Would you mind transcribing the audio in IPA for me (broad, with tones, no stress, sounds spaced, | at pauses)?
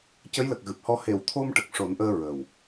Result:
c ə˧˥ j l ə˨˩ k̚ ɣ ɨ˨˩ p̚ h ɔ˧ h e˨˩˨ w t̪ʰ o˧ m ʈ ə˨˩ k̚ ʂ o˨˩˦ n ʔ əː˧ ɹ ə˨˩ w